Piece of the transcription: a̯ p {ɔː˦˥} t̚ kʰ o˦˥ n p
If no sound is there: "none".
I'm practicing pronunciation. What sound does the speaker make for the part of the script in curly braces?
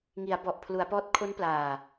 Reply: ɔː˦˥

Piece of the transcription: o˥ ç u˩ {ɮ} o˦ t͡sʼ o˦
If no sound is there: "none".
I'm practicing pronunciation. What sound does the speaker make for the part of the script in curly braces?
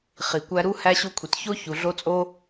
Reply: ɮ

